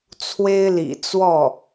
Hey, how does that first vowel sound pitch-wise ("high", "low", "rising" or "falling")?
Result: high